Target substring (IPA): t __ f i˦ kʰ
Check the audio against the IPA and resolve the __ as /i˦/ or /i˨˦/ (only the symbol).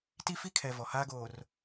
i˦